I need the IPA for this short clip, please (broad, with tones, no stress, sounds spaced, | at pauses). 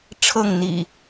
ʈ͡ʂʰ ɤ˥˨ ŋ n̪ ḭ˨˩